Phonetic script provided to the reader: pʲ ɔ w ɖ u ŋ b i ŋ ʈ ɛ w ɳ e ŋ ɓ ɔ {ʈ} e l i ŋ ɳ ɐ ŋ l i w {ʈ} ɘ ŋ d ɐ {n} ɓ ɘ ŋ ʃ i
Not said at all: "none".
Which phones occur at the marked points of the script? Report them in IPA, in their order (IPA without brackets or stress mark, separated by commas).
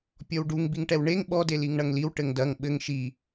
d, ʈ, ŋ